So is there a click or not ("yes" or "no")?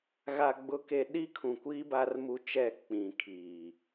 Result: no